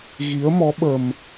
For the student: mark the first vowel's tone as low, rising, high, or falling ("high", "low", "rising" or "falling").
rising